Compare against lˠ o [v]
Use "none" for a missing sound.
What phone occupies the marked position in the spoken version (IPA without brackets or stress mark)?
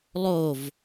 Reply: v